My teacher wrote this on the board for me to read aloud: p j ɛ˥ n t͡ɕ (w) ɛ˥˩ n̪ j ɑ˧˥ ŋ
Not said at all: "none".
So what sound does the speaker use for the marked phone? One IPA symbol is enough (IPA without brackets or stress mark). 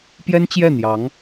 j